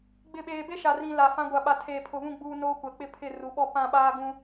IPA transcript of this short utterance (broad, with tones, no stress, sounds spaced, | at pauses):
ɡ͡b ɪ˦˨ ɓ eː˦ b e˦ ʃ a˨ r ĩ˨ l a˨ f ã˦ ɡʷ a˨ ɓ a˨ tʰ eː˨ pʰ ʊ˨ β ũ˦˨ ɡ͡b uː˦ n oː˦ kʷ ɛ˨ k͡p ɪ˦ pʰ ɪ˦˨ r u˨ ɓ ɔ˦ p ã˦˨ ɓ aː˦ ɡ ũ˦